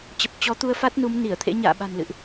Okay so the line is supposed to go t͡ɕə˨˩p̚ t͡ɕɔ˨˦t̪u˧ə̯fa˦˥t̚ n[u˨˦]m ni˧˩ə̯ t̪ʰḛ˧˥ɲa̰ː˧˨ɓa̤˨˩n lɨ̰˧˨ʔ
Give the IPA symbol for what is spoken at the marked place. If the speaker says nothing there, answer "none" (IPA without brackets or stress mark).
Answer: u˨˦